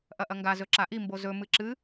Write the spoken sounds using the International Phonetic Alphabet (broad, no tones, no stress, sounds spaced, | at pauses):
ʔ ɐ ʔ ɐ ŋ ɡ a z ɵ ǁ a ʔ i m b o z ɵ m ɨ ǁ ɨ